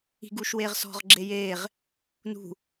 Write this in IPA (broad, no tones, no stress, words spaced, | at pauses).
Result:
i̤ɡuːʃweːʁ sɔ̤ʁɡ͡ǁe jeːʁ | nṳ